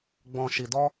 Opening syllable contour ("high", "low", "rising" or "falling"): low